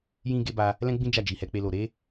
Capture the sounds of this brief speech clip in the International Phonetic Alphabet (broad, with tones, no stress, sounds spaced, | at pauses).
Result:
j ĩ˦ ɡ e˦ b a˧ | l ɛ̃˦ ɡ͡b ĩ˦ d͡ʒ a˦˨ d͡ʒ i˨ h ɛ˧ k͡p e˧ l o˨ ɾ e˨˦